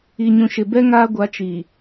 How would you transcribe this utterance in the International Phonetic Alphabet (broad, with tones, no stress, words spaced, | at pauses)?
i˨ɲũ˨ʃɪ˨bɛ˦ ŋaː˦ɡʷa˨˦ t͡ʃiː˨